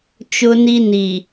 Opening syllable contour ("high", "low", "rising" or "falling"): high